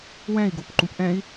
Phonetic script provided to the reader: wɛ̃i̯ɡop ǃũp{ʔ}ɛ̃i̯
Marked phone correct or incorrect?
correct